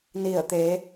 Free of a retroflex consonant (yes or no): yes